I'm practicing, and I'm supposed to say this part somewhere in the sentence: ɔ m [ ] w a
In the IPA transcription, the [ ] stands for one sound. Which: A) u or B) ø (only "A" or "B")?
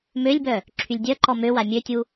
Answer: B